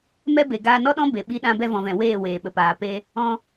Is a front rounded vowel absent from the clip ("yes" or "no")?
yes